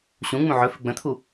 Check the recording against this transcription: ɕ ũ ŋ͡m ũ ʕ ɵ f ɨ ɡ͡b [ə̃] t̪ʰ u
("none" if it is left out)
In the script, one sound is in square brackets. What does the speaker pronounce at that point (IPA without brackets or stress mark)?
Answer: ə̃